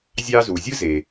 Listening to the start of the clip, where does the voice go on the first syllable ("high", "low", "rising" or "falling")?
high